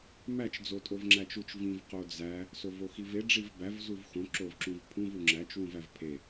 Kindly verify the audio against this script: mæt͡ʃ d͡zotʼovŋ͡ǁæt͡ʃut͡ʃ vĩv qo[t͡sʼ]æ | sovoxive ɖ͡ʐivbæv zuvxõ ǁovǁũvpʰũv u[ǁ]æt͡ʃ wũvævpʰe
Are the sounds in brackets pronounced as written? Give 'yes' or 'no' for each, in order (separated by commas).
no, no